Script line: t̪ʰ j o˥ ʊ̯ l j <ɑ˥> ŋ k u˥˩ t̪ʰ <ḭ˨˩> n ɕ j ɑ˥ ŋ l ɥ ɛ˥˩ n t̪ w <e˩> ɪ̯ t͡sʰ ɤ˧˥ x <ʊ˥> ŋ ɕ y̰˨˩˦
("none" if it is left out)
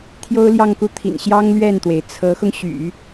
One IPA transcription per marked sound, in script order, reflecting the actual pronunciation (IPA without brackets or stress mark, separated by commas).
ɑ˥˧, ḭ˨˩, e˩, ʊ˧